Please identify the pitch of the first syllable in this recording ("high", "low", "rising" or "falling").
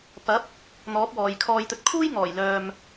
rising